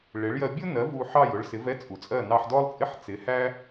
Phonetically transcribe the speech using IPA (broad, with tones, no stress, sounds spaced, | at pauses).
ɭ ɪ˩˥ ɭ j ɜ˧ bʲ ʊ˥ n ɜ˩˥ v u˧ ħ ɑ˥˩ j ʊ˧ ɭ s ɪ˩˥ v ɛ˥ t͡sʼ u˩ t͡sʼ ɜ˥˩ n ɑ˧ ħ d ɔ˥ lˠ t͡sʼ ɪ˥ ħ t͡s ɪ˩˥ h æ˥